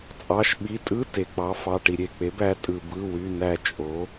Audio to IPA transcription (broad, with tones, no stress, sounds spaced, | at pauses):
t͡sʼ ɑ˩˧˩ ʃ ɓ i˩˧˩ tʼ ɯ˧˥˧ t e˩ k͡p ɑ˩˥ f ɑ˩˧˩ ʈ i˩ ɾʲ e˧˩ k͡p e˩˥ b æ˩˥ tʼ ɯ˩ b ɯ˩˧˩ w y˩˧˩ n æ˧˩ t͡ʃʼ o˩˥